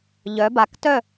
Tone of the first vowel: rising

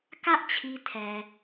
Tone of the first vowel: high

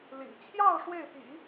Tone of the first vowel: low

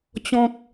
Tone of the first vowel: high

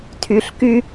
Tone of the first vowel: low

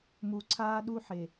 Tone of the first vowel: low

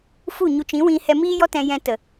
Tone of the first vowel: falling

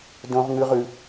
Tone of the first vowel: high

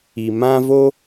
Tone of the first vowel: low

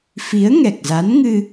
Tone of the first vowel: rising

